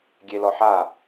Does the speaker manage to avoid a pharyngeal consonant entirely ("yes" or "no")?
no